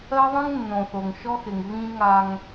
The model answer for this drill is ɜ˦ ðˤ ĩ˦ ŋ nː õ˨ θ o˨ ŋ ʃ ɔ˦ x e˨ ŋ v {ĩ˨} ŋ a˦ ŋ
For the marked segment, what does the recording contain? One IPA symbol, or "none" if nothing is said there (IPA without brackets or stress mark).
ĩ˦